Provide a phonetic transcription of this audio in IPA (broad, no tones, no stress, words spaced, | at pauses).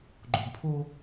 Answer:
ɡ͡ǃoɡpʰo